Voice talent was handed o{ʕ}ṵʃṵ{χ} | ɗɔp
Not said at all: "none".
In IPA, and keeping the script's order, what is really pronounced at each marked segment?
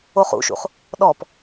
χ, χ

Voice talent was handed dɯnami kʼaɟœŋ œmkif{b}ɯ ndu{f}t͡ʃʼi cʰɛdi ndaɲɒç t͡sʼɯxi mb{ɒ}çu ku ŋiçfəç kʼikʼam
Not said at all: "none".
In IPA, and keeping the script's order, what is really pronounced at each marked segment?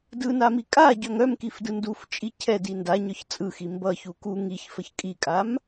d, f, ʌ

